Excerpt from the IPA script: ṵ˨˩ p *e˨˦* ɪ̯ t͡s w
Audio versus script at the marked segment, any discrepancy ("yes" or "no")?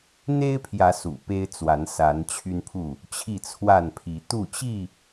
yes